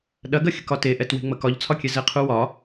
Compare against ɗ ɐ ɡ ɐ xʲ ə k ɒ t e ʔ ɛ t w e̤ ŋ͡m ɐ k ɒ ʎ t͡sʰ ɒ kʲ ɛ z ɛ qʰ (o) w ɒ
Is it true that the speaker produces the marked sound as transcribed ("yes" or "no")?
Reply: no